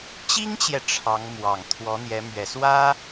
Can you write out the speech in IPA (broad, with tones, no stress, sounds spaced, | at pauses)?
t͡ɕ i˥ ŋ t͡ɕ j ɛ˨ ʈ͡ʂʰ ɑ˧˥ ŋ m w ɑ˨˩ ŋ t̪ʰ w ɔ˧˥ n̪ j ɛ˧˥ m ɥ ɛ˨˩ s w ä˥